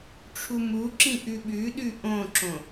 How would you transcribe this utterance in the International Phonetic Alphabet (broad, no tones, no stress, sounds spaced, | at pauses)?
ʈ͡ʂʰ u m u ǁ ĩ ʔ ʉ ɓ ʉ ɗ ʉ ʔ õ ǁ õ